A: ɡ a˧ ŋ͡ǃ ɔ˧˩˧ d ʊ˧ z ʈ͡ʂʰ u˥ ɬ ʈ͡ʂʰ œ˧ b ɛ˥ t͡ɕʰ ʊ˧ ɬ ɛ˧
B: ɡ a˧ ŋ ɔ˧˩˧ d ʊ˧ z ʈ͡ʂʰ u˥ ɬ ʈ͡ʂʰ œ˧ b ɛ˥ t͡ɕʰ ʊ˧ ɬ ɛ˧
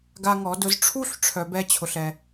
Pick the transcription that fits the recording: B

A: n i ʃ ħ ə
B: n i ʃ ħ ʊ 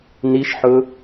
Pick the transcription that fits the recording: B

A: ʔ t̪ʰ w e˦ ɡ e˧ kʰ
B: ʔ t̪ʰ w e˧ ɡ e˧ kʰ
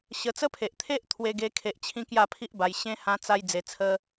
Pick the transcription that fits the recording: B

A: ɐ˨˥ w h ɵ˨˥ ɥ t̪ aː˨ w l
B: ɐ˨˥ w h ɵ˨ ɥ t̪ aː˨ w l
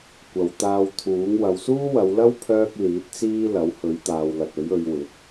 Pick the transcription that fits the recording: A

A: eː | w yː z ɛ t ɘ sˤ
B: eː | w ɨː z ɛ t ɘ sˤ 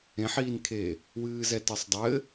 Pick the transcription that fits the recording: B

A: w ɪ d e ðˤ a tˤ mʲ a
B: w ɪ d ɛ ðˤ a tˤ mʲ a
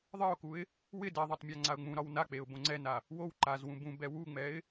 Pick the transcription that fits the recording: B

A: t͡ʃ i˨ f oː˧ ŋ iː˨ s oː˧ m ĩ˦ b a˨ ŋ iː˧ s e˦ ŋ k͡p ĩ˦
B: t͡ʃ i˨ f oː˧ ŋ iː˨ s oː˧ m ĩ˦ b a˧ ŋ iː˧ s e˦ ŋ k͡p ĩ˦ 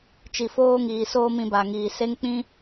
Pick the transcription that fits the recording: B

